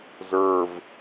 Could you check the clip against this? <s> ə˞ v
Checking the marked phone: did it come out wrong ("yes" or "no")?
yes